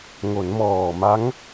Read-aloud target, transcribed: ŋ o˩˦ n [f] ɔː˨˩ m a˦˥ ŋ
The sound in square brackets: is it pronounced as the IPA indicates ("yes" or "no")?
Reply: no